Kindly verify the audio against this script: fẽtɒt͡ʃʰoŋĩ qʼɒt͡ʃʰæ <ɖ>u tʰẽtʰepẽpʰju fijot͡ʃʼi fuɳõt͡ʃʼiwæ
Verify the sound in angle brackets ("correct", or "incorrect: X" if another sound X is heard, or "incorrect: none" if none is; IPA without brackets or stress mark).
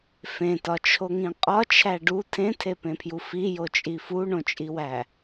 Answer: correct